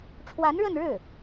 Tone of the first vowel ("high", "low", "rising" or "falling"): rising